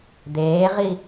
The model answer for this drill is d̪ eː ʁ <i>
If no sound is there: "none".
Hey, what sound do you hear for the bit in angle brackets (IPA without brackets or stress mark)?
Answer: i